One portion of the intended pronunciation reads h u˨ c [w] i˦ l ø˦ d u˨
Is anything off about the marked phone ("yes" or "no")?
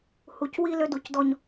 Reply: no